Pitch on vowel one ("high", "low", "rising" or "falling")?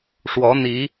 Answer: rising